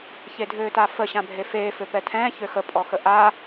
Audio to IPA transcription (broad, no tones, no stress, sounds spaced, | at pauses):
ç e dʱ øː t a f ə ɕ ã bʱ e f eː f ø p ɛ tʰ ɛ̃ː ç ø x ə pʼ ɔ x ə ʔ a